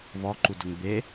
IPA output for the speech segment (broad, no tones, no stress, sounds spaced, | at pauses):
v ɔ ǃ u d ʊ ŋ b e